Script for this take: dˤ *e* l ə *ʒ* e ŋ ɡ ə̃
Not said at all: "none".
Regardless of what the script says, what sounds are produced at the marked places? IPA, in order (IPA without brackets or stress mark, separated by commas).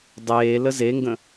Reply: eː, z